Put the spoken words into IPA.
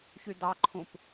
ç y d̪ ɑ ǃʰ ũ p

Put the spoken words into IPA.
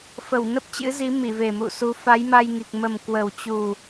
f ə˧˩ w n ə˦˥ p̚ t͡ɕ ɨ̰˧˥ z i˨˦ m i˧˩ v e˨˩ m ṵ˧˨ s u˨˦ f a˨˦ j m a˧ j ŋ i˨˩ k̚ m ə˨˩ m k w ə˨˩ w t͡ɕ u˨˩

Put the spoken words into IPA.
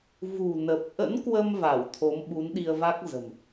v ṳ˨˩ n ə˨˩ p̚ ʔ ə̰˧˥ n k w ə˧ m v a˧˩ w t̪ʰ o˨˦ m ɓ u˨˦ n ɗ i˧ ə̯ v a˦˥ k̚ z ə̤˨˩ m

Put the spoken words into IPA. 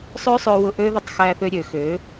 sˤ ø˦ sˤ ø˧ w ʊ˧ ʔ ø˦ ð ə˧ tˤ x æ˧ θ ø˧ ɾʲ ø˨ x ø˨˦

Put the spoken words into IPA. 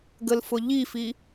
ɡ ə l f ʊ ʎ i f i

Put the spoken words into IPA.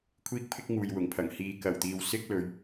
kʷʰ iː˥ k̚ pʰ ɪ˥ k̚ ŋ uː˨ j w ʊ˨˩ ŋ pʰ ɐ˨˩ ŋ h iː˨ k ɐ˨˩ w t̪ iː˨ w s ɪ˥ k̚ l ɵ˨˧ ɥ

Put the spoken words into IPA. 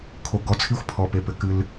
kʰ o˨ ɡ ɔ˨˦ t͡sʰ i˦ xʷ pʰ ɔ˨ p e˨ p ɘ˨ k ɨ˦ l

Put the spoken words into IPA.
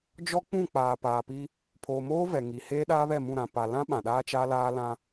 d͡ʒ ɔ˦ k͡p ũ˦˨ k͡p aː˨ p aː˨ p i˦ | pʰ oː˨ m oː˦ v ɛ˨ ŋ i˨ h eː˦ ɗ aː˦ β ɛ˦˨ m ũ˦˨ ɾ ã˨ p a˨ l ã˦ ɓ ã˨ ɗ aː˦ t͡ʃ a˦ l aː˦ l ã˦

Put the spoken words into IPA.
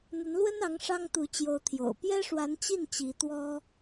n̪ ə˧˥ n l w ə˥ n ɑ˧˥ ŋ ʂ ɑ˥ ŋ t̪ u˧˥ t͡ɕ j o˧˥ ʊ̯ t̪ʰ j o̰˨˩ ʊ̯ p j ɛ˥ ʂ w a˧˥ n t͡ɕ i˥˩ n t͡ɕ i˧˥ t̪ w ɔ˥

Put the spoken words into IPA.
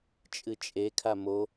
t͡ʃʼ ɨ t͡ʃʼ e kʰ a m o

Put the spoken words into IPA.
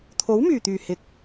t̪ʰ o˨˥ w m yː˨˩ t̪ yː˨˩ h ɪ˨ k̚

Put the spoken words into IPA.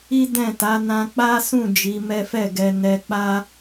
i˦ d ɛ̃˦˨ t a˨˦ n ã˧ k͡p a˦ s ũ˦˨ d͡ʒ i˨˦ m ɛ˦ f ɛ˦˨ ɡ ɛ˧ n ɛ˧ k͡p a˦

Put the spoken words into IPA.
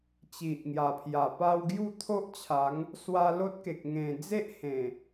t͡ɕ i˨ ʔ ŋ j a˨˩ pʰ j a˨˩ p a˧ w ɡ j u˥˧ t̪ʰ o˦ ʔ t͡ɕʰ a˨˦ ŋ | s w a˧ l o˦ t̚ k e˨ k̚ ŋ ẽ˨˩ d͡z e˦ ʔ h ẽ˨˩

